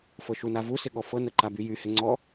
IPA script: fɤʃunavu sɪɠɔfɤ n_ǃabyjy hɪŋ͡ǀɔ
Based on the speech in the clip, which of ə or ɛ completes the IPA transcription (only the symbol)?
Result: ə